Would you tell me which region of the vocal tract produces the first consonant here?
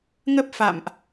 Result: velum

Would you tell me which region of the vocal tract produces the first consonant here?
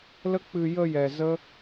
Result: tongue tip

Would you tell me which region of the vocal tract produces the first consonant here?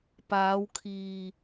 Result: lips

